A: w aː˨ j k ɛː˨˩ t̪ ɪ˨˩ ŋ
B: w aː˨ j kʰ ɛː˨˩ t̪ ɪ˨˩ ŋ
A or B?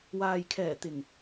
B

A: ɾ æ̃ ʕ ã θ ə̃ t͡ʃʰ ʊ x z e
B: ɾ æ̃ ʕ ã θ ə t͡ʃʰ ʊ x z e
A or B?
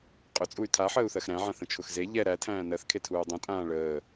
A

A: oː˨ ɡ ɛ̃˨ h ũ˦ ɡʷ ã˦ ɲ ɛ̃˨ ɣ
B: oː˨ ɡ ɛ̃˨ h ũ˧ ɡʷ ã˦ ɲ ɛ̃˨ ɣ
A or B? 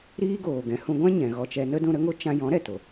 B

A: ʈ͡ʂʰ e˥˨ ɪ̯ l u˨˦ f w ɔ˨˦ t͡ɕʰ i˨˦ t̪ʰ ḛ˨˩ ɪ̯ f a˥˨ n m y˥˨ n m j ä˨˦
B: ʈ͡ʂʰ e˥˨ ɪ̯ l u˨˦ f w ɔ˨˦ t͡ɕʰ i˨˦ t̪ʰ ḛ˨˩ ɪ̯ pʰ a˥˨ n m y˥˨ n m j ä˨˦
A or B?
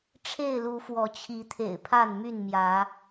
B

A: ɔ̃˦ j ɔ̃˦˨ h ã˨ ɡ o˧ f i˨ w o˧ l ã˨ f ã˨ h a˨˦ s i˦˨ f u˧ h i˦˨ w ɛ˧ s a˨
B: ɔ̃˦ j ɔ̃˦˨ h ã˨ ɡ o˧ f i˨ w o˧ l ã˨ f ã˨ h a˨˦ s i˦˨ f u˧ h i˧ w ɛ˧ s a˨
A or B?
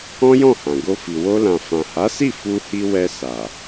B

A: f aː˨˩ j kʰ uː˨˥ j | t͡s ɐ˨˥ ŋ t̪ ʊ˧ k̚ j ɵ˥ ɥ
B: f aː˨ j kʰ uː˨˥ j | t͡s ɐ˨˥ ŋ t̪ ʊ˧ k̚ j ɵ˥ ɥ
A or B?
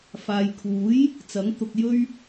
B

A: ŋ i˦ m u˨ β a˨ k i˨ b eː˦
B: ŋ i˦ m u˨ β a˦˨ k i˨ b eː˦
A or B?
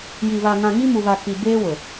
A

